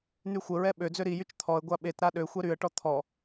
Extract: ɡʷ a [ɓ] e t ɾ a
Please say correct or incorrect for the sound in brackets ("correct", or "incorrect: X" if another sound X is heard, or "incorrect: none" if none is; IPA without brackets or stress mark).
correct